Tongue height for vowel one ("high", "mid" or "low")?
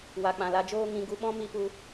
low